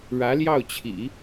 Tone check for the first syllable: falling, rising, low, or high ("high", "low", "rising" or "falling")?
rising